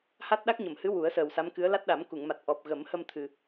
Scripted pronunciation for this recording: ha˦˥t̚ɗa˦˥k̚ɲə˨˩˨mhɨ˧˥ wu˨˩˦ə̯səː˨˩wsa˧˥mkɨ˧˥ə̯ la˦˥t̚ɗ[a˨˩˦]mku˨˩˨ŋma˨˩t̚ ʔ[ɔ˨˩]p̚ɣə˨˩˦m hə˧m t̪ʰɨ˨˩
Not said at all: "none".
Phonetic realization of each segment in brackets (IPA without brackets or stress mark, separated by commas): a˨˩˦, ɔ˨˩